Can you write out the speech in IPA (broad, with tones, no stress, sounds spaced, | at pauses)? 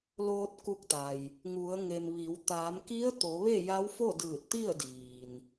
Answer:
l oː˧ t̚ k u˧ k̚ t̪ a˩ j | ŋ u˩˧ ə̯ ŋ e˩ m ʋ i˩˧ w t̪ aː˩˧ m k i˧˥ ə̯ t̪ o˩˧ ʋ e˥˨ j a˧˥ w f o˥˨ d ɯː˧˩ t̚ t̪ i˥˨ ə̯ d iː˩ n